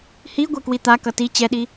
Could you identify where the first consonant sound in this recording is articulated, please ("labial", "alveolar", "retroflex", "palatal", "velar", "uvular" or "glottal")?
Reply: glottal